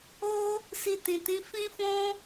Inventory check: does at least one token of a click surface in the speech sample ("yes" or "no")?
no